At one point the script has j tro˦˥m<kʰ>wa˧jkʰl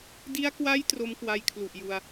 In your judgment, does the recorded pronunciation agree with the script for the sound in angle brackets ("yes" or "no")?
no